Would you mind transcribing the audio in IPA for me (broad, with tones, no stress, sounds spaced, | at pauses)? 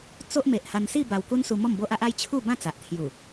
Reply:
t͡s o˦ ʔ m e˨ ʔ h a˧ n s i˥˧ b a˧ w k u˦ n s u˧ m ɔ˥˧ m b o˦ ʔ a˦ ʔ a˦ j t͡ɕʰ u˥˧ b ã˥˧ t͡s a˨ ʔ t̪ʰ j u˨˩